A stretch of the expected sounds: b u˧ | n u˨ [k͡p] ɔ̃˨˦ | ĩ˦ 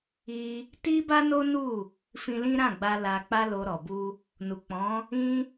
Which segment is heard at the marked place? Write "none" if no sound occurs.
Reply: k͡p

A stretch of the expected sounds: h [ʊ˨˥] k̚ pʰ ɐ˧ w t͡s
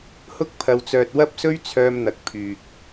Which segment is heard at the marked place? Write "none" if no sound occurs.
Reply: ʊ˥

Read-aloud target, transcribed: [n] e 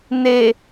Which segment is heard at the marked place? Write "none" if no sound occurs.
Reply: n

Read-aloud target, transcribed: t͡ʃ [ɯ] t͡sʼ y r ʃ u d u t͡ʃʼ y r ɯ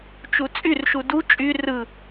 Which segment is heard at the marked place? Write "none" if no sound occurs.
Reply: u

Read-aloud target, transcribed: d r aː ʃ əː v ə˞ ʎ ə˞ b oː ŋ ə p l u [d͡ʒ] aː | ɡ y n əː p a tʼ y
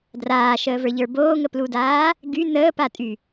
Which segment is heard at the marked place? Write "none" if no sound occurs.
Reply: d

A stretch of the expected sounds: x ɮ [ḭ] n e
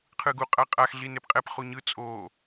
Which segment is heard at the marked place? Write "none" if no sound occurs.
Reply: i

